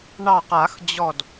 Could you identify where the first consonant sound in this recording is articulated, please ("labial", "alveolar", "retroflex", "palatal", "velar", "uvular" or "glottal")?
retroflex